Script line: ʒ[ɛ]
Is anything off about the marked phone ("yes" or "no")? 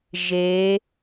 yes